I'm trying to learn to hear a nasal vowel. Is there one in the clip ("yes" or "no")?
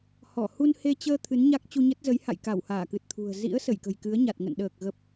no